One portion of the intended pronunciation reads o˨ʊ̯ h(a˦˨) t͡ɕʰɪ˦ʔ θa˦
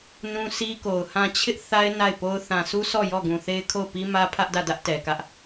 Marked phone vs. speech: incorrect: ã˦˨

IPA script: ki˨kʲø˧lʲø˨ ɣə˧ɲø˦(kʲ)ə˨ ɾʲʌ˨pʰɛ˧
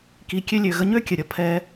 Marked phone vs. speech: correct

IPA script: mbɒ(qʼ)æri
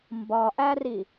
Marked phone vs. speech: incorrect: ʔ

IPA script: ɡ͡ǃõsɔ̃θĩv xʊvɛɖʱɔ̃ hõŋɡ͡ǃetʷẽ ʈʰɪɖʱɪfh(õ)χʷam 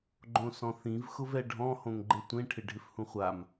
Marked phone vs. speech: incorrect: ũ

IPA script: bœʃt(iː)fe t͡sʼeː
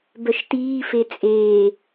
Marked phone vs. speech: correct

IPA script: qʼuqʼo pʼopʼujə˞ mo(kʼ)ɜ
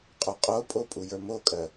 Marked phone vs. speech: correct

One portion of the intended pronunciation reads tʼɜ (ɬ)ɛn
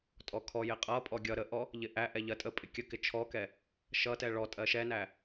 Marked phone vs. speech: incorrect: ʃ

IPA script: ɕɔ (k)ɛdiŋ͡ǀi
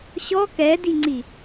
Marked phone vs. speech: correct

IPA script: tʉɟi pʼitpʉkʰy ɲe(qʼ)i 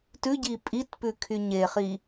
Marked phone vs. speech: incorrect: χ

